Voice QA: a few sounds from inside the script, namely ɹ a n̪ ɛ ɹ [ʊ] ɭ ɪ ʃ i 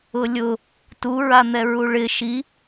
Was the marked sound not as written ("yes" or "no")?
yes